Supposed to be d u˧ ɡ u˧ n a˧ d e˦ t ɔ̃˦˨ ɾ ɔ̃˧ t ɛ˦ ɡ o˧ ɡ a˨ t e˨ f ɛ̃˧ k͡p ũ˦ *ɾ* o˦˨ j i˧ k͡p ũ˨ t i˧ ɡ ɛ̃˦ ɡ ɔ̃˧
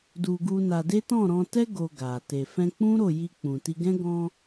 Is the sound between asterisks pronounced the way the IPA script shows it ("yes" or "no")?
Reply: yes